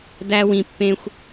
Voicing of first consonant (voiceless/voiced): voiced